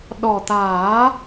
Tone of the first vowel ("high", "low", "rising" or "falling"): low